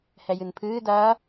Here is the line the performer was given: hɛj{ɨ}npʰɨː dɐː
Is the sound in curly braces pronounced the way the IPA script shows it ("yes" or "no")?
yes